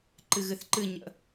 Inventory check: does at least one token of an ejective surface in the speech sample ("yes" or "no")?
no